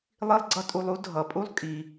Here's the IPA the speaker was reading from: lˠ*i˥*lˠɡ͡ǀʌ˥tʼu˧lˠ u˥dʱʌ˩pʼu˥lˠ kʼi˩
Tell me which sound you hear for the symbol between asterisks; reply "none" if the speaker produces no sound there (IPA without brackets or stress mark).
i˥